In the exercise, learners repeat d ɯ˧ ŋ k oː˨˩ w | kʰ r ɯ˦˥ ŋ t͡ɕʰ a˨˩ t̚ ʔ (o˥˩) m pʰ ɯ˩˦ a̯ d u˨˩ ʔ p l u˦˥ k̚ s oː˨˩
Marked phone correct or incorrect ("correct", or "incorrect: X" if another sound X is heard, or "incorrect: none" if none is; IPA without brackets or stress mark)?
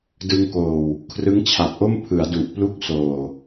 correct